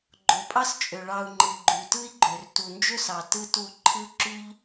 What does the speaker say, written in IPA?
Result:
ɡ͡ǃ o˨ pʼ ɑ˦ s t͡ʃʼ ø˨ ɭ ɑ˨ u̯ ŋ͡ǃ ɯ˨ ɡ͡ǃ y˨ t ɯ˦ i̯ ɡ͡ǃ ø˨ r t u˨ n d͡ʒ ø˦ s ɑ˨ t ɯ˦ t u˦˨ ǃʰ ɯ˦ ǁ y˦ ʎ

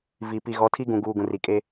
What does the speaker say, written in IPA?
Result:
v i˨ p i˨ ɣ ɔ˨˦ tʰ i˦ ɡ ũ˨ ɡ uː˨ ɡ ũ˨ r i˨ kʼ e˦

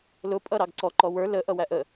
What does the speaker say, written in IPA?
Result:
l ʊ pʼ ʌ ɾ ɑ ɡ ǀ ɔ ǃ ɔ w ə˞ l ə ʔ ʌ w æ ʔ ə

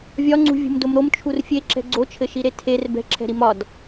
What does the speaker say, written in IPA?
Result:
vʲ ɒ ŋ͡ǀ ṳ vʲ ṳ m d o m ɾ o m t͡ʃʰ u r fʲ e ǁ ɛ̤ ɡ͡ǀ o t͡ʃʰ ɘ ʃ i ɾ e tʰ e r b ɛ̤ ǁʰ ɛ̤ ɾ i m ɒ d

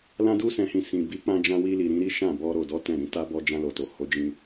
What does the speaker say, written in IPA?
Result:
l ã˧ d u˧ s ɛ̃˨ h ĩ˨ s ĩ˨ b i˨˦ k͡p ã˧ d͡ʒ ã˧ w i˧ l i˨ ɾ ĩ˨˦ ɾ i˦ ʃ ã˦˨ b ɔ˧ ɾ o˨ d ɔ˨˦ t ɛ̃˦˨ ɾ ĩ˨˦ t a˦ b ɔ˧ d͡ʒ ã˧ l o˨ t o˨ h o˨˦ d͡ʒ ĩ˧

